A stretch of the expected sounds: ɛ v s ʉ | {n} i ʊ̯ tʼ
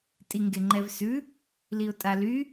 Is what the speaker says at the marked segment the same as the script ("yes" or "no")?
no